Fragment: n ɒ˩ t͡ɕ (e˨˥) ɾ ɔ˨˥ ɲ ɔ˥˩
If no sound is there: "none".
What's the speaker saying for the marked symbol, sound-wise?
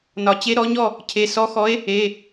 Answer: e˨˥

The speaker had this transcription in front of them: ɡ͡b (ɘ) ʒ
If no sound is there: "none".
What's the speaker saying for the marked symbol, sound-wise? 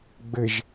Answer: ɘ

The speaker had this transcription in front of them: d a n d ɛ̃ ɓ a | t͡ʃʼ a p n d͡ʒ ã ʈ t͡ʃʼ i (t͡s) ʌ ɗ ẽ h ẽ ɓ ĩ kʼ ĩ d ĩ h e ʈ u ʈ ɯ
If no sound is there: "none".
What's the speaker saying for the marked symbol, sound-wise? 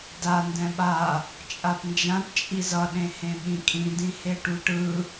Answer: z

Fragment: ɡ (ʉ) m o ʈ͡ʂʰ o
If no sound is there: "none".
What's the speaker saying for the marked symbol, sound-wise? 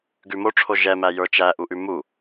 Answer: ʉ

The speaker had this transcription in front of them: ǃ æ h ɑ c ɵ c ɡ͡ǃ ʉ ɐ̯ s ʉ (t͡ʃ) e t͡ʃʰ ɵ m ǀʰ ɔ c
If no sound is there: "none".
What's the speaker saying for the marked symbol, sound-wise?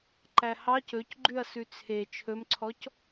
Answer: t͡sʰ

